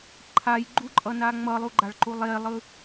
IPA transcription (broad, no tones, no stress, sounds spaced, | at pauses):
ǃʰ a j ɡ͡ǃ u ǃʼ ʌ n a ŋ͡m ʌ lˠ u ɡ͡ǃ a ɭ ǃ u lˠ e lˠ ɯ